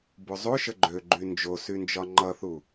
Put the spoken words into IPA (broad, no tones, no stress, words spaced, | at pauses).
bozˤoʃə ɡ͡ǃøɡ͡ǃy nd͡ʒosynd͡ʒɒ ŋ͡ǃʌθu